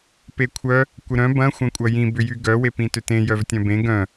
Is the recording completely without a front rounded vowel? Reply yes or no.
no